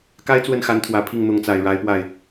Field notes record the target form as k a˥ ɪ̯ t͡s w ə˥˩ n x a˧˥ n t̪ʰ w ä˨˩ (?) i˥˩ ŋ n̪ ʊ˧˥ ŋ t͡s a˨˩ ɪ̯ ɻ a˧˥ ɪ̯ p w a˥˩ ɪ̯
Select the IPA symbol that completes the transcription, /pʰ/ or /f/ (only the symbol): pʰ